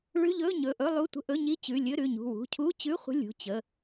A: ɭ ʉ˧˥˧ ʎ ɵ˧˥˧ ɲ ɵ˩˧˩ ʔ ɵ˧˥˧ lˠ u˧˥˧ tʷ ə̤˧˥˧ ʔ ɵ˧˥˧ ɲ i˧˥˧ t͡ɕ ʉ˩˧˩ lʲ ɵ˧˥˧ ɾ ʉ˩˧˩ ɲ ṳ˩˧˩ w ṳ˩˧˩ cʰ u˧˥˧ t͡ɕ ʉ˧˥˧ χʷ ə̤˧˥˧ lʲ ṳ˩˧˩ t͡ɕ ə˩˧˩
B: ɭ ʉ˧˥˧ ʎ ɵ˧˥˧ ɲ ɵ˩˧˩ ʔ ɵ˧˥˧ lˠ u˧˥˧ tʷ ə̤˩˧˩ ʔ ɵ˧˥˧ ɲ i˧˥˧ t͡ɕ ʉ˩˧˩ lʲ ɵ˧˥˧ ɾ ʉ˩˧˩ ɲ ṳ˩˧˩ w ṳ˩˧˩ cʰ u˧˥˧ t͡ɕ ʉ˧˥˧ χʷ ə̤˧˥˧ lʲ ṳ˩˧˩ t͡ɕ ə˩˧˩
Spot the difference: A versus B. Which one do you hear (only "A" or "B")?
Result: A